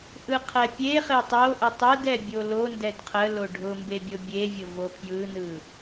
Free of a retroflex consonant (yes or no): no